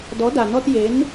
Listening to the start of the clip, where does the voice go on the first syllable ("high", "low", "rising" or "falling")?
rising